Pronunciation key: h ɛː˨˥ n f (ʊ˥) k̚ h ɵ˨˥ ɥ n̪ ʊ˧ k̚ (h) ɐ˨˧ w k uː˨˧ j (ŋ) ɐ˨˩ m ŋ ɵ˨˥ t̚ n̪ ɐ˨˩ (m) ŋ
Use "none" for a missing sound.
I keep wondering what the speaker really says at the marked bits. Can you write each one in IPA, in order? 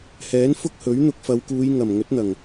ʊ˥, f, ŋ, none

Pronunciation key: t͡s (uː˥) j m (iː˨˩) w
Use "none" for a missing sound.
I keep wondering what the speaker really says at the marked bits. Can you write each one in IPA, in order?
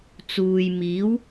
uː˨, iː˨˥

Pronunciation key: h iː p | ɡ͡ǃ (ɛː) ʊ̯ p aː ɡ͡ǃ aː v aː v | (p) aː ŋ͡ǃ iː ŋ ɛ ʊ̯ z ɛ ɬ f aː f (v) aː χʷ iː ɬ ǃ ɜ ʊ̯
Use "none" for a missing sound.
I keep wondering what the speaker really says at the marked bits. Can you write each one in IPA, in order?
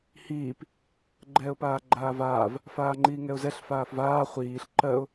ɛː, f, v

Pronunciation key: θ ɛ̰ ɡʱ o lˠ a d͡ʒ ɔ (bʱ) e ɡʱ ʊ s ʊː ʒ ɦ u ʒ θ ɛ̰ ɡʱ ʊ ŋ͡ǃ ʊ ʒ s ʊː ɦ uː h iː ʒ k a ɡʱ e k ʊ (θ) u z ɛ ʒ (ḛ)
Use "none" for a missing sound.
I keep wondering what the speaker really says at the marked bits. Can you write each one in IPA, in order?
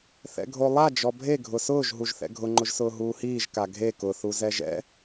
bʱ, θ, ɛ̰

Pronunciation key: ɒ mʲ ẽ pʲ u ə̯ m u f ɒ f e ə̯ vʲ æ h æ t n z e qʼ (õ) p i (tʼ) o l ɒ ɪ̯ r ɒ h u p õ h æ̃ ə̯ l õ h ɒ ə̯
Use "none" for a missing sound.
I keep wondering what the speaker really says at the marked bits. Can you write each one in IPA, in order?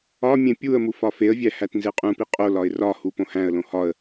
ũ, qʼ

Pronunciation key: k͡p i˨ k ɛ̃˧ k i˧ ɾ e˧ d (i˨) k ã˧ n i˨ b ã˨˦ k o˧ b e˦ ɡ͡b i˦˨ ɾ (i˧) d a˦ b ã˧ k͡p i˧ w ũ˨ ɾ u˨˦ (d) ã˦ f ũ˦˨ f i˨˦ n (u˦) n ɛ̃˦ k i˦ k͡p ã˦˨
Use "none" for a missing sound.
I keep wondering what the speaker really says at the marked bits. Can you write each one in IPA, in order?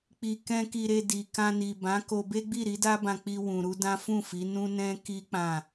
i˨, i˨˦, d, ũ˦

